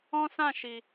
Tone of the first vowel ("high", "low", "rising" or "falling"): high